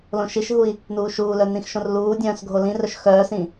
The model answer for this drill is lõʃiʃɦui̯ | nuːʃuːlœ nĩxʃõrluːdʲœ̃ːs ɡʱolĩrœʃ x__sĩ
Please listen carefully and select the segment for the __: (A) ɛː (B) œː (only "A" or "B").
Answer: B